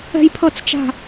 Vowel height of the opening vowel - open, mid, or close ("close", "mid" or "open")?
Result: mid